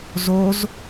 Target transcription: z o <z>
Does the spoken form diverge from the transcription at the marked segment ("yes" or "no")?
no